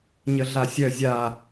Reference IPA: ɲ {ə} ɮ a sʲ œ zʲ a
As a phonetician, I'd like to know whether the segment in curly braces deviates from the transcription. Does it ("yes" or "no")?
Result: no